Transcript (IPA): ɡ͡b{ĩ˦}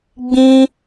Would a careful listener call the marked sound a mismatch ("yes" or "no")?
no